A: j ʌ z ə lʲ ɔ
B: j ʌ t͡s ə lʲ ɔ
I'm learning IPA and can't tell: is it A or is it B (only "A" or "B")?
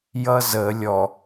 A